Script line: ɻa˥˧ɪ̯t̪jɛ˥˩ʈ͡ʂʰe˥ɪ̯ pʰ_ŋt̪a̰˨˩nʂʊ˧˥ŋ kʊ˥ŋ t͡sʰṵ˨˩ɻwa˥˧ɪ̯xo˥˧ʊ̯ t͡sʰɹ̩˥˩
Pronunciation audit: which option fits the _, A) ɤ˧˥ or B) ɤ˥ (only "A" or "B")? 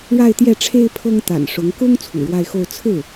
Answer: B